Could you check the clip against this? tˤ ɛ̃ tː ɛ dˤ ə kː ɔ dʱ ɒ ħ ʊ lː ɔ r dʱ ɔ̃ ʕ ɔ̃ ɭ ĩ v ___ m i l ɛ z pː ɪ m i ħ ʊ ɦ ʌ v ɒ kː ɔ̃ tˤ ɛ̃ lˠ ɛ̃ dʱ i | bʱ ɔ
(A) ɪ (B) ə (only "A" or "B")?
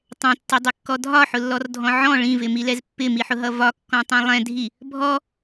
A